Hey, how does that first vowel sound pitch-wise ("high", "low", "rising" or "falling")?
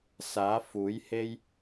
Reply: rising